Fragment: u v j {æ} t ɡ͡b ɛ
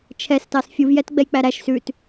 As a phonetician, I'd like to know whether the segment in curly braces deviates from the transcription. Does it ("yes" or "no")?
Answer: yes